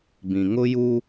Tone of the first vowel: low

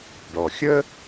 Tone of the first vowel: low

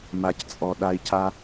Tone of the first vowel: low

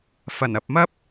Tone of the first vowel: low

